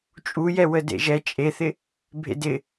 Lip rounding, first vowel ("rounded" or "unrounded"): rounded